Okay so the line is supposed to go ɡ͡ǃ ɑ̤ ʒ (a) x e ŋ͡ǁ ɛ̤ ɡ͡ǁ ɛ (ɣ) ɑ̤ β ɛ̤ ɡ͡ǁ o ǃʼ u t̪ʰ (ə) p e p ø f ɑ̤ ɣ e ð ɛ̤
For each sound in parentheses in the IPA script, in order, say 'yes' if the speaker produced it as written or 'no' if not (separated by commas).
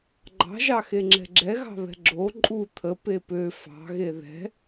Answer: no, yes, yes